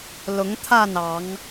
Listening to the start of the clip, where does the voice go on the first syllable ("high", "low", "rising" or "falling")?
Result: rising